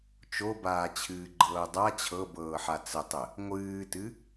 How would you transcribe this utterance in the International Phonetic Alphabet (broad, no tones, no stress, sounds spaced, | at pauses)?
t͡ʃ o b aː t͡ɕʰ ɨː ɡ͡ǃ ɤː dˤ a t͡ɕʰ ɤ b ɤː ħ a t͡s ə tˤ ə | ŋʷ ɨː t ɨ